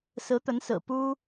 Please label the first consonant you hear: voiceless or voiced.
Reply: voiceless